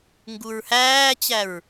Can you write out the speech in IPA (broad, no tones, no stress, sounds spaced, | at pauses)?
ŋ ɡ u ɹ h æː t͡ɕ æ ɹ